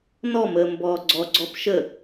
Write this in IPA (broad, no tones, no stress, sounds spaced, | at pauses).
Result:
n ɔ m əː m b ɔː ɡ͡ǀ ɔ ɡ͡ǀ ɔ p ʃ ə